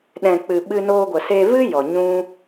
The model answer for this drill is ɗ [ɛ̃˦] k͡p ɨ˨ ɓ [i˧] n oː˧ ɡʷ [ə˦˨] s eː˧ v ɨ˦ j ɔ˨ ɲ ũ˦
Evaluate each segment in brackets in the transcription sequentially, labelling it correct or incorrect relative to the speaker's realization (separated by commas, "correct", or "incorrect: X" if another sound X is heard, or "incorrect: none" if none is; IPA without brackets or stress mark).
incorrect: ɛ̃˨, incorrect: ɨ˧, incorrect: ə˨